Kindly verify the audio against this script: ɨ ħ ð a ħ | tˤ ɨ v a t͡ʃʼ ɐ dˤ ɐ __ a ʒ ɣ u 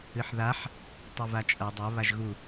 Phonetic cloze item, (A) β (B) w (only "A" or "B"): A